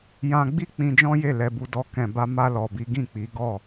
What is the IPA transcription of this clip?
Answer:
jã˧ɡ͡bi˦ k͡pĩ˧d͡ʒɔ̃˦je˦˨ lɛ˧bu˧dɔ˧ kɛ̃˨ba˧ ma˧lɔ˨bi˨˦ ɡĩ˦˨k͡pi˨˦ ɡɔ˦˨

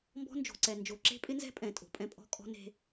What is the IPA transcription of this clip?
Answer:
mbɔ̤˦ nd͡ʒo̤˨ǀɛ˨ nd͡ʒo˨ǁe̤˦pʼɪ˦nzɛ̤˦ pʼɛ̃˨ tʼo̤˨pʼɛ̃˦ pʼɔ̤˦kʼɔ̤˦ne̤˦

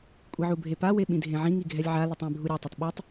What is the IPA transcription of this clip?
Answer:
kʷʼiʕubʱepa weɓĩdʱẽʕĩ ŋiɡʱɛlʲʕa litˤẽ bʱuɾʲa tˤitˤɓitˤ

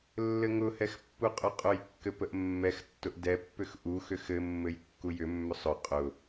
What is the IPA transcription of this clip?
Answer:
lːɘŋʊhɛx pːuqʼʊqʼʊjkːɘ pəʔmːɛxtːʊʔ dɛpːʏx ʔuxʏ xɘmːɘj kːujʏmːʏ sˤʊ qʼʊ

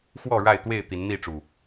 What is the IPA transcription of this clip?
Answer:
xwɔ˥˨ɻa˥˨ɪ̯t̪we˥˨ɪ̯ t̪i˨˦nn̪i˥˨ʈ͡ʂu˨˩

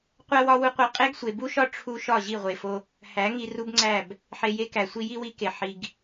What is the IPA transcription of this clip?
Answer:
qʷæ˦ wɒ˦wu˦qʷæ˧ qʼe˦ɡsʷe˨ bu˦ʃɒ˦ ʈ͡ʂʰu˧ ʃɒ˦˨ʑi˦˨ʁʷe˨fo˧ | hæ˨˦ŋi˧ ru˦bŋ͡ǀæ˦˨b | ħe˧je˦kæ˨ sʷi˧ji˦wi˧ke˨ ħi˨ɡ

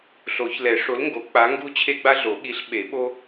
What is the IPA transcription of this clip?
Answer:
ɬo˨˩˦ç lɛ˨˩˦ʂo˨˥lŋɡo˨˩˦ k͡pa˨˥ ŋɡu˥ t͡ɕʰe˥ɡ͡ba˥ɮo˨˩˦ ɠi˨˥ɬ ɓe˨˩˦ ɓo˥

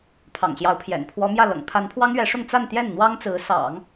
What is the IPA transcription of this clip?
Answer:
pʰɑ̰˨˩ŋɕjɑ˧˥ʊ̯pʰjɛ̰˨˩n pʰwɔ˧˥mjä˥˩ lɤ̰˨˩ŋpʰa˧˥npʰwɑ˥ŋɥɛ˧˥ ʂʊ˥˧ŋ t͡sa˥˧n t̪jɛ˥˩nn̪wɑ˥ŋ t͡sɹ̩˧˥ sɑ̰˨˩˦ŋ

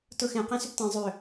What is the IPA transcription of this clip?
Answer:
tʊxẽ qẽsʏptẽ zˤʏ

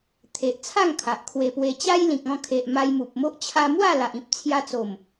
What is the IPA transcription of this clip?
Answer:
t̪ʰe˨ʔt͡sʰa˥˧ŋ kʰa˨ʔkʰwe˧pwe˧ t͡ɕa˦jlĩ˨k̚ɔ̃˥˧ kʰe˨ʔ ma˧jmu˨p̚mo˦ʔ t͡ɕʰa˧mwa˥˧ la˨ʔĩ˦p̚t͡sʰja˧t͡so˨˩m

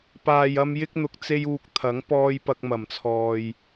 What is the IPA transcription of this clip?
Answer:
paː˨jɐ˧m jɪ˥k̚n̪ʊ˧k̚ t͡se˥juː˧k̚t̪ʰɐ˨˥ŋ pɔː˧j pɐ˧k̚mɐ˨˩mt͡sʰɔː˨j

